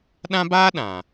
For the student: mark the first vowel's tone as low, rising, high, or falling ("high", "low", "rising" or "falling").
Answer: high